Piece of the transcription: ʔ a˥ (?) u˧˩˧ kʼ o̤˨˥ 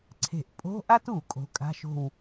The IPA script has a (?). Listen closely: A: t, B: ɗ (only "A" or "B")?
A